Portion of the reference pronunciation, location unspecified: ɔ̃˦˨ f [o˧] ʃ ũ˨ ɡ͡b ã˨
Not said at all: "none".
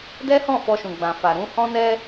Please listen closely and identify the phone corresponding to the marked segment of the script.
ɔ˧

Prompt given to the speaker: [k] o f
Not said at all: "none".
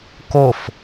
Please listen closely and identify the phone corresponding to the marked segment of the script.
k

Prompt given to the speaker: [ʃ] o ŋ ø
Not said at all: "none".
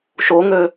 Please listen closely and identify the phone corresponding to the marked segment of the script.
ʃ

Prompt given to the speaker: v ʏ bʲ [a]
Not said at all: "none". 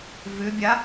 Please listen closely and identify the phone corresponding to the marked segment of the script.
a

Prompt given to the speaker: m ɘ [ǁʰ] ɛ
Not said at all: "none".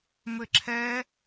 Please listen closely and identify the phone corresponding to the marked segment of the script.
ǁʰ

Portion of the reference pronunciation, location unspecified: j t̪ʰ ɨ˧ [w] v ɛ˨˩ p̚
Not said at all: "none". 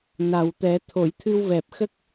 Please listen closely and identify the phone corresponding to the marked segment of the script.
w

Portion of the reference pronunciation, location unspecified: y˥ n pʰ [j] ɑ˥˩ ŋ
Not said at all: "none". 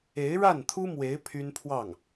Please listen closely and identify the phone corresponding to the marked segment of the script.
w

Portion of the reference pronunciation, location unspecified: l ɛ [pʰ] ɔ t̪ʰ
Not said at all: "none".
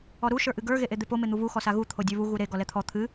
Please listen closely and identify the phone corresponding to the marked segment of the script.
t̪ʰ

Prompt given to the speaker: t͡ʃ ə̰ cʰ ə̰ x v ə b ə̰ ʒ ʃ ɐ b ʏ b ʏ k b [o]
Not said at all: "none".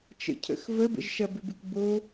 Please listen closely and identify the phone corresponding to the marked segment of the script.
o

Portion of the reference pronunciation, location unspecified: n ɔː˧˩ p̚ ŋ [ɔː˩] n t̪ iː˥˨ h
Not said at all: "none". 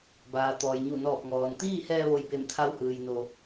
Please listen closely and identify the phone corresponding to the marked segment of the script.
ɔː˩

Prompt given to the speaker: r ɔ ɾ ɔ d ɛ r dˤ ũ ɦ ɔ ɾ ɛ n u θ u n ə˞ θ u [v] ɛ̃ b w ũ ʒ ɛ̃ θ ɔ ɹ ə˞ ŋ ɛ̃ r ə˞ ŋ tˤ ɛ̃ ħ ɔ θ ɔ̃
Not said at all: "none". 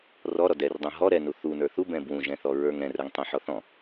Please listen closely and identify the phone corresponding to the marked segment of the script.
b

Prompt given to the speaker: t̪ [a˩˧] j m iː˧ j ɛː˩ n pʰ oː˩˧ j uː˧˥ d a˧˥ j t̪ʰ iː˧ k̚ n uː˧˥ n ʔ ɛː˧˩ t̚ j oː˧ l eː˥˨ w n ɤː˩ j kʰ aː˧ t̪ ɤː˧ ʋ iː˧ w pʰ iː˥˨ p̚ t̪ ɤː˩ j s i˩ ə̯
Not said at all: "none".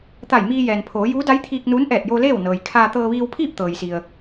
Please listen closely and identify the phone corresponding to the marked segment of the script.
a˧˩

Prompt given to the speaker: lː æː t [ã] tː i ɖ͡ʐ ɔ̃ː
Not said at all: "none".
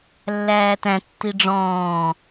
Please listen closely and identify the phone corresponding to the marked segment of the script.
æ̃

